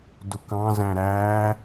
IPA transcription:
dʊkɑ̃ zæ̃ɾæː

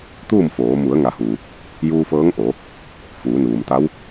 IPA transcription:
t̪uː˥˨mfoː˩˧ mu˩˧ə̯ŋa˩˧huː˩ | juː˧fɤː˧˥ŋʔo˩˧ | fuː˩˧nuː˩mt̪a˧˥w

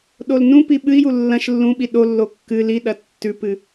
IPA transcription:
ɗolnũpi ɓɨi̯ju lːɐ̃ʃ lːũɓi ɗolːo kːɨ liɗɐ tːʉpɨ

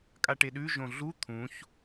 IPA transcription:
kʼaʈeɗʉ ʒõɮu t̪ʰũç

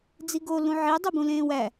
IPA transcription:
d͡ziɡo lũʕi dˤubũlẽːwæ

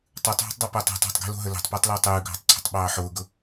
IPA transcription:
tˤʉtˤɦo̤tˤdˤopəːtˤ e̤tˤ ɑ̤tˤɡe̤lo̤ɦə le̤tˤpəːtˤlʊː tˤʉːɡʱɑ̤tˤǀʰə̤tˤɓɑː ħʊːɡʊ

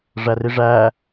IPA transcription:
ʐæriʐæː

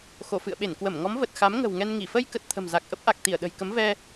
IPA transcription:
xo˧˩fɨ̰˧˨ə̯ɓe˧˩n kwə˧˩mŋɔ˨˦mvə˨˩t̚ xa˨˦m ŋə̤˨˩wŋɛ˧nŋi˧˩ fə˧jkə˨˩t̚ t̪ʰə̤˨˩mza˨˩k̚ ʔə˦˥p̚ʔa˨˩k̚ t̪i˧˩ə̯ɗə̤˨˩jkə˨˦m vɛ˧

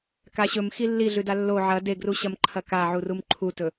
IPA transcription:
kaɕɵmxi lːiɮʉda lːo ʕɐ deɡruɕɐm ǃʰɐkaʕurum ǃʰutɵ

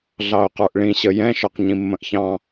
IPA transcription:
ɮɑʊ̯qə˞ʔɭĩ ɕəjɛ̃ ʃə˞qɲĩmːə̃ʔçɑ̃

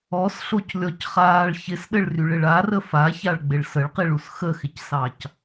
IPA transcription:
ɔsɬoclʲɔcχaːɭ çɪsɗɘɭryɭɪɭ arə façaɭɡ͡bɪɭ səɭqiɭus xəxɪcsɑc

